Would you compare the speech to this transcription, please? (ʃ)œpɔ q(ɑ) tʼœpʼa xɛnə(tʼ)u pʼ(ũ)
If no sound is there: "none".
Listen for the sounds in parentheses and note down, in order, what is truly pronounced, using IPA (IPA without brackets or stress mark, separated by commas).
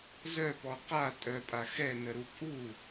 z, a, ɾ, u